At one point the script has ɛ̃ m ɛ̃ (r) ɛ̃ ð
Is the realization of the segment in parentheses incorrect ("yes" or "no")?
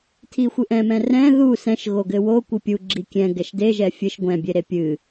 no